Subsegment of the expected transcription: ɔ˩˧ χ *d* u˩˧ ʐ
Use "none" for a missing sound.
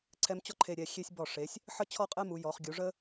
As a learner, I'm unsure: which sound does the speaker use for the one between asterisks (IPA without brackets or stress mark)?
ɡʲ